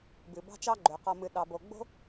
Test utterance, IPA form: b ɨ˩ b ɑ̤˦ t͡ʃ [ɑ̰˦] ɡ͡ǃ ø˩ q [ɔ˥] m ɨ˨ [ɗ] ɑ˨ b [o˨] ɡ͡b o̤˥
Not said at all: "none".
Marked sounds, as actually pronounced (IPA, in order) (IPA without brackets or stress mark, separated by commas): ɑ˦, ɔ˨, ɗ, o˨